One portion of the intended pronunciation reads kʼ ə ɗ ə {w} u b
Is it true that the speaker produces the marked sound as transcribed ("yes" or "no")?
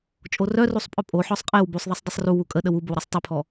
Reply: yes